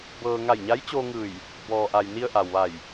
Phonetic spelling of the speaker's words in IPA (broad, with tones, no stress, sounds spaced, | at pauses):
b ɤː˧ ŋ a˧˩ j ɲ a˧˥ j t͡ɕ oː˧ ŋ ɯː˧˩ j | b ɔː˩ ʔ a˩ j n i˧ ə̯ ʔ a˩ w ʋ a˧˩ j